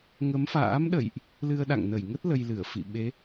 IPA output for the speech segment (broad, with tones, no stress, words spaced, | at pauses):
ŋə˨˦mfa̰ː˧˥mɗə̰˧˨jʔ | lɨ˧ə̯ɗa̰˧˨ŋnə˧˩jŋə˦˥t̚ lə˧jlɨ˧˩ə̯ fḭ˧˨ ɓe˨˦